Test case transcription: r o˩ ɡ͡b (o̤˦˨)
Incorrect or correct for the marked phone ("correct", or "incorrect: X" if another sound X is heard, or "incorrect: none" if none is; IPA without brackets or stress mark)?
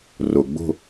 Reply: correct